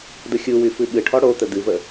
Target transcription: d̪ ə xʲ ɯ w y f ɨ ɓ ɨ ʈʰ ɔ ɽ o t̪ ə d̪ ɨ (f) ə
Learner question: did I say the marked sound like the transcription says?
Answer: no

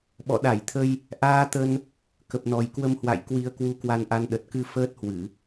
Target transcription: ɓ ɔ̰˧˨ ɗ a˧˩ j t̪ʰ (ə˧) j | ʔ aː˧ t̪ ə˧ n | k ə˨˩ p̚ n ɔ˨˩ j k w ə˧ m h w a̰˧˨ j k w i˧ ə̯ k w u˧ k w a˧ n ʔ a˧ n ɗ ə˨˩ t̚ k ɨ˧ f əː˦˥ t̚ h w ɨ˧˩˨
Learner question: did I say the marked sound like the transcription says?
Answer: yes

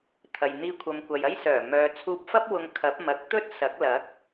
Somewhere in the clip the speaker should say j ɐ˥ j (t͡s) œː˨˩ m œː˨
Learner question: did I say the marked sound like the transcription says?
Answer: no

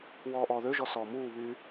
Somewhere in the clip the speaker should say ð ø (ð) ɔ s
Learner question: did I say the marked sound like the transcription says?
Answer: no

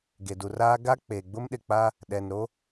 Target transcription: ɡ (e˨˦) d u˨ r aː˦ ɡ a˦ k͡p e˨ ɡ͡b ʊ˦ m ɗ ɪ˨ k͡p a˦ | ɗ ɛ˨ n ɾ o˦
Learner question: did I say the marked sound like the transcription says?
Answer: no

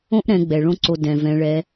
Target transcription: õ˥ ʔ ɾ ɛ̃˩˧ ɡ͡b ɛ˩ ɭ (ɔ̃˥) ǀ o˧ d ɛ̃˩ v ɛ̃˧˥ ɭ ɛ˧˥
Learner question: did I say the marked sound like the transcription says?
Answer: no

